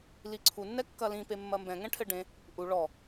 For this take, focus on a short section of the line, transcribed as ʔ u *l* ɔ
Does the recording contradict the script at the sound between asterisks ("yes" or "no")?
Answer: yes